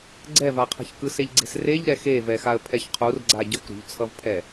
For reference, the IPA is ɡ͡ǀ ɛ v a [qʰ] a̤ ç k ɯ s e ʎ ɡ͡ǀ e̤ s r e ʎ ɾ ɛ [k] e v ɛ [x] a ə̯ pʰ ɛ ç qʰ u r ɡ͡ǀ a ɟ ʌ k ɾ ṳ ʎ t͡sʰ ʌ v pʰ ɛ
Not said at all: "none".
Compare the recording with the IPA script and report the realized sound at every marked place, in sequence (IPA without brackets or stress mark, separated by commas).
qʰ, x, x